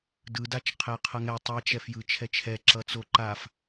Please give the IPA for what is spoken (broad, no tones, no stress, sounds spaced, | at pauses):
d ɯ d a t͡ʃ qʰ ɛ qʰ ʌ ŋ ɛ tˤ i t͡ʃ ɛ f j ɯ t͡ʃʰ ɛ t͡ʃʰ ɛ ǁ ʌ t͡s o ǃ a f